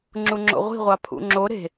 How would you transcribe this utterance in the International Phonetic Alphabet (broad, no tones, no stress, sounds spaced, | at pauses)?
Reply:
ŋ͡ǁ u ŋ͡ǁ o̰ ʁʷ i̤ ʁʷ ɑ pʰ ṵ ŋ͡ǁ o ɾ e̤